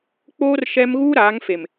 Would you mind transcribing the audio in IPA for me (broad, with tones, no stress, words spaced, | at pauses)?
k͡poː˦r ʃɛ˦m ɣuː˦ɾaː˨˦ŋfe˨m